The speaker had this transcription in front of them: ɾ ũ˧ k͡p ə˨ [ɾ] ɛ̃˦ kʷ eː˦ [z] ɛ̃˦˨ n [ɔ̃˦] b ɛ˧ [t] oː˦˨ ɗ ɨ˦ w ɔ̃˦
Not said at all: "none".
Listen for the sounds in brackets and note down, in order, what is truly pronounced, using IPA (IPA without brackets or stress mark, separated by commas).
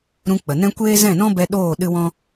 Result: n, z, ɔ̃˦, ɗ